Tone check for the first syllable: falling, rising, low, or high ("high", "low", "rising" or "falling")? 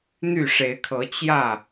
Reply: falling